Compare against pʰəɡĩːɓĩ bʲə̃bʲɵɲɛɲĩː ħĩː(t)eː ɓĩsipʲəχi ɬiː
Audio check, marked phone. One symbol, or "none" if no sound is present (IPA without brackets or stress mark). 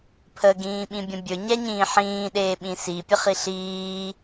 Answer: ɗ